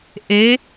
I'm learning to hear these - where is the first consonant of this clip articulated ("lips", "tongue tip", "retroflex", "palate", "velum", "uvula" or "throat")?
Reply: throat